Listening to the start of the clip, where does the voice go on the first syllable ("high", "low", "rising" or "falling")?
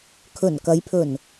low